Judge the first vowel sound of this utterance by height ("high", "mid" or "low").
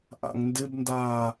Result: low